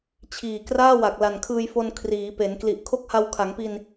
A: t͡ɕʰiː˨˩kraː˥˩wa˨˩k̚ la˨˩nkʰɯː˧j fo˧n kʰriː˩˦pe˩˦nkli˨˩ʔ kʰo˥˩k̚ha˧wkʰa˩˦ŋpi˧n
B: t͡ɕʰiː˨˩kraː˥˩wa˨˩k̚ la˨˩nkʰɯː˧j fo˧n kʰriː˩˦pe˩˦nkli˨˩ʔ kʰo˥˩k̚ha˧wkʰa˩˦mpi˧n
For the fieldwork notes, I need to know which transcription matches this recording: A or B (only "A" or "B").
A